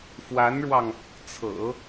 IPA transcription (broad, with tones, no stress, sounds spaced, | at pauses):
f w a˧˥ n ɻ w ɑ˧ ŋ | t͡sʰ ɤ̰˨˩˦